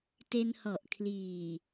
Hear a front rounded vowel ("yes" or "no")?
no